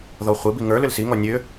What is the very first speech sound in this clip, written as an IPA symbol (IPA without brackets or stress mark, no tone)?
ð